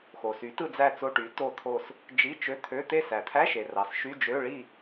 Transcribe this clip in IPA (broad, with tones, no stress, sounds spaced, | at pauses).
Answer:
x o˩ s y˩˥ t ɯ˦˨ d͡z æ˦˨ t͡s o˧˥˧ ʈ y˩˥ t o˦˨ t̪ʰ o˦˨ s | d͡ʒ i˧˥˧ t͡ʃ ø˧˥˧ t̪ʰ ø˧˥˧ t̪ e˦˨ s æ˩ t̪ʰ æ˧˥˧ ʃ e˩ r ɑ˩ s ʃ y˧˥˧ d͡ʒ ø˧˥˧ ɭ i˦˨